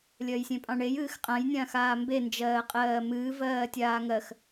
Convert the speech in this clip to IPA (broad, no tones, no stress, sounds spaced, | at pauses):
lʲ ɜ j sʲ ẽ pʼ ɑ̃ ɳ e j ɨː x qʼ ã j nʲ ãː x aː m b e n d͡ʒ ɜː qʼ ɜː m ɨː v ɜː tʲ aː ŋ ɜ x